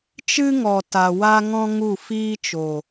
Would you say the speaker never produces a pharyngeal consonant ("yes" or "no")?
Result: yes